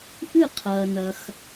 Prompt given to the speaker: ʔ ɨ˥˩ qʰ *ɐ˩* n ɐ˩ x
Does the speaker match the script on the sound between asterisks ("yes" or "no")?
no